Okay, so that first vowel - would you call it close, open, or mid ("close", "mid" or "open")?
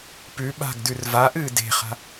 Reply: close